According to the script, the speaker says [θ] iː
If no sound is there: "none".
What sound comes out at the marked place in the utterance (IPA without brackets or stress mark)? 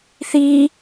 θ